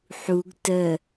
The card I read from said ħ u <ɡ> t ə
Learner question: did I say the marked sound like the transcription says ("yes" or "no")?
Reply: yes